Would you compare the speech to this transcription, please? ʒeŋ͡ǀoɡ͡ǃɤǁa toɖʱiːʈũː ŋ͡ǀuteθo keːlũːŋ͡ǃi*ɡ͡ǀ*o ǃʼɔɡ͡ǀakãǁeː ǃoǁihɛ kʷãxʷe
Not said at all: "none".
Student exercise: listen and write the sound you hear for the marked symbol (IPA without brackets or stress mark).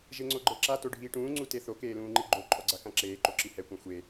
ɡ͡ǃ